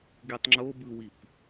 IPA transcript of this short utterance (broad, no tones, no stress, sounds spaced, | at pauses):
ɡ i tˤ ŋ͡ǁ o b ɯ w i p